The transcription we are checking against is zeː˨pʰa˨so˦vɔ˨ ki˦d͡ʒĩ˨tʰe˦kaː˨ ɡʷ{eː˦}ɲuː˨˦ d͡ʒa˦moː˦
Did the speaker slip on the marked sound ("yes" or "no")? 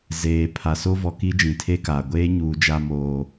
no